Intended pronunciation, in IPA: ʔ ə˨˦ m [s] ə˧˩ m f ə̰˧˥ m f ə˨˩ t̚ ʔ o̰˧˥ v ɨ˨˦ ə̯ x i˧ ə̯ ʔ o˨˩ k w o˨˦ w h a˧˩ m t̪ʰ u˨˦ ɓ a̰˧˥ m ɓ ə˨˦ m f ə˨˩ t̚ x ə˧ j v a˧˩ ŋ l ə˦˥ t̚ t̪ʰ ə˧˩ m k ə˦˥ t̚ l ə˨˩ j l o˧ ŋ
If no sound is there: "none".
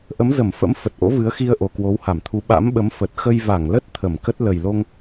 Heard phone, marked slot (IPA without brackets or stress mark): z